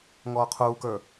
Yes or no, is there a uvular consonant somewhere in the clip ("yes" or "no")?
yes